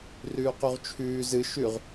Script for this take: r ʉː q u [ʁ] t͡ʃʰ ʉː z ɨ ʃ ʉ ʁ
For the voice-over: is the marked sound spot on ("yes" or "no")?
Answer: yes